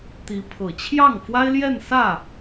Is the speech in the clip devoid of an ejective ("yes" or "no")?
yes